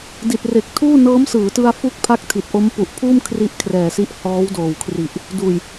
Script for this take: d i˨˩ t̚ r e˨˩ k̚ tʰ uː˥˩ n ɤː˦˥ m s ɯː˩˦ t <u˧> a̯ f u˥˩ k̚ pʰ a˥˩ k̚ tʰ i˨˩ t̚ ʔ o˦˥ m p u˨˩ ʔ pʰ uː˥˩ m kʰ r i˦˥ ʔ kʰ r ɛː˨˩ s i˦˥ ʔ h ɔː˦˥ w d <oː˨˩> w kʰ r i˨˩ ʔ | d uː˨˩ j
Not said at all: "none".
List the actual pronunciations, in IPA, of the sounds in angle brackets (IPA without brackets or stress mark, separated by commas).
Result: ɯ˧, oː˨˩